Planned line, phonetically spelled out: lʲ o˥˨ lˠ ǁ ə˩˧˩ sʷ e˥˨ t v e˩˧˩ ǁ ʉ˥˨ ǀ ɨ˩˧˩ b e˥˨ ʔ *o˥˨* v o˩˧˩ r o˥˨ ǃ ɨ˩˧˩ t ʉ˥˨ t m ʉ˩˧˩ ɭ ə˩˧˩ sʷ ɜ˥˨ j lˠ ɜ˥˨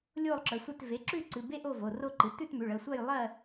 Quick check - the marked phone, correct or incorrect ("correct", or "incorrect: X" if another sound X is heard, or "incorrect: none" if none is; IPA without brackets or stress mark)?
correct